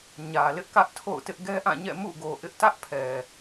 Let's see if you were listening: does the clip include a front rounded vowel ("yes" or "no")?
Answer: no